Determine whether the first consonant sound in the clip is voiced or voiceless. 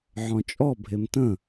voiced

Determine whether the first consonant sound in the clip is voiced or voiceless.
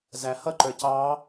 voiced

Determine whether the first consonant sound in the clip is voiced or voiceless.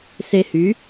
voiceless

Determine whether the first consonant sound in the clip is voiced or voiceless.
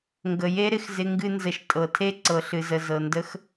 voiced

